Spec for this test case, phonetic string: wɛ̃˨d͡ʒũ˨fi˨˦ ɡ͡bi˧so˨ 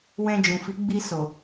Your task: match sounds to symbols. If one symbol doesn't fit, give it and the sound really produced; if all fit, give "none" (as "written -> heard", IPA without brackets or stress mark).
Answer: ɛ̃˨ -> ɛ̃˧